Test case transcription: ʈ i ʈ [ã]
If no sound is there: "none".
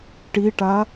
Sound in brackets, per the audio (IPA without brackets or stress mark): a